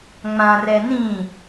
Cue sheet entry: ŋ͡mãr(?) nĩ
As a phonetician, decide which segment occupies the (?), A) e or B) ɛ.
B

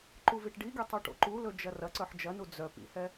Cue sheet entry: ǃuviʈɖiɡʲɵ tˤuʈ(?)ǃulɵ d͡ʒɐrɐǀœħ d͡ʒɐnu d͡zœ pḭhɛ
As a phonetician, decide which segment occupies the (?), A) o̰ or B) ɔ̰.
A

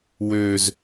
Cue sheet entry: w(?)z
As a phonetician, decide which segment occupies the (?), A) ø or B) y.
A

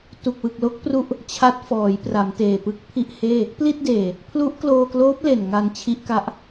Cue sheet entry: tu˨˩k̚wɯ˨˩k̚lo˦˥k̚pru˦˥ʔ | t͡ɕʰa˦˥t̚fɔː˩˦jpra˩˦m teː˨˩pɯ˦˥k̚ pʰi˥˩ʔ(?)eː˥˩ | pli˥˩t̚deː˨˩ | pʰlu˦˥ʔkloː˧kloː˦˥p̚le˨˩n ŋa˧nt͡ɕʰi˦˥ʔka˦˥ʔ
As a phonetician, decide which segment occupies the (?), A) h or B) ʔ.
A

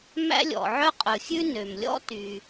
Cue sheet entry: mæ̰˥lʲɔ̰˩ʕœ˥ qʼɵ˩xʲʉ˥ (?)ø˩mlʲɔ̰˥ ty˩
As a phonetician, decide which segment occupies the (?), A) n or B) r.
A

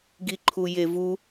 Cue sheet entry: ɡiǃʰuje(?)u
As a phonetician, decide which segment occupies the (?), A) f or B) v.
B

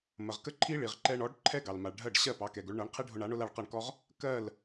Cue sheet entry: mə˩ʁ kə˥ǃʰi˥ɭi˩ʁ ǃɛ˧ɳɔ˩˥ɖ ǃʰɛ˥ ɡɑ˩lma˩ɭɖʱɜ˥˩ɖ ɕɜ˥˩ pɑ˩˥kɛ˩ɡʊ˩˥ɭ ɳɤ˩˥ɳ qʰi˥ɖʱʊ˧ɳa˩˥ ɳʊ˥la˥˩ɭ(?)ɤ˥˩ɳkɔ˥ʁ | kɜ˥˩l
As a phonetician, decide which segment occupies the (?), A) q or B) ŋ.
A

